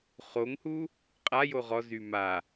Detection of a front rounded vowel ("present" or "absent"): present